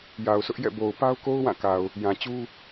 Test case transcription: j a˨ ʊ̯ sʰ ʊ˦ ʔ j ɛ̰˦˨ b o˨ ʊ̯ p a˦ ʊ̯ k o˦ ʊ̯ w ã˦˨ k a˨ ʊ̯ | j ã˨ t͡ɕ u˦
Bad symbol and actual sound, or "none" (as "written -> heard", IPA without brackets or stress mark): none